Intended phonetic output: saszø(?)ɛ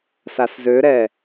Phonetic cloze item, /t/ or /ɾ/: ɾ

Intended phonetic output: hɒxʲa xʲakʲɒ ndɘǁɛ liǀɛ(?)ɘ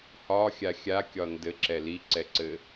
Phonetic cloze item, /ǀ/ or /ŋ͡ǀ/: ǀ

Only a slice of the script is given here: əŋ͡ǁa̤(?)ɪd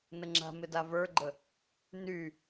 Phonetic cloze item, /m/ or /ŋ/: m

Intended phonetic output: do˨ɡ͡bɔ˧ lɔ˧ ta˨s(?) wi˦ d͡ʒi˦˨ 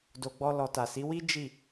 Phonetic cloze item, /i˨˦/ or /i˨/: i˨˦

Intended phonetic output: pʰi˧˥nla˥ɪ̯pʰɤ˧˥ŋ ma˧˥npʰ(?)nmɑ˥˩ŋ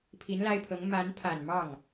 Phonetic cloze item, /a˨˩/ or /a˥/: a˨˩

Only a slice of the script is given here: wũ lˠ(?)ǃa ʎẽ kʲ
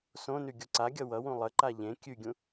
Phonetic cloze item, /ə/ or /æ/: ə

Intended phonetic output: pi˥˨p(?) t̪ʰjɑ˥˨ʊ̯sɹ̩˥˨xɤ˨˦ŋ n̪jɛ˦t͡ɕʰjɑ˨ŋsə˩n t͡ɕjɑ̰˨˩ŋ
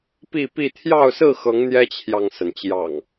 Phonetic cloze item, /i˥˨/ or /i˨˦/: i˥˨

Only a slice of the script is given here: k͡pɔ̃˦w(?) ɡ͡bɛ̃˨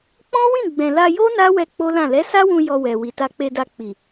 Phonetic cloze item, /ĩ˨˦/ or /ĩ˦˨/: ĩ˦˨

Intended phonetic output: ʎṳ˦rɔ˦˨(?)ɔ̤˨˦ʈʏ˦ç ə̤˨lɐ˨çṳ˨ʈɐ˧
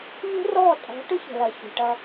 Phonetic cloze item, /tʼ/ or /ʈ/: tʼ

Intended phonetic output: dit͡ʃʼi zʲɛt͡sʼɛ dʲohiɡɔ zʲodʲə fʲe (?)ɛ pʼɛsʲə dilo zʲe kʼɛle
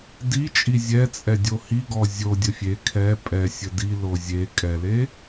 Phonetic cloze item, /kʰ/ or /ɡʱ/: kʰ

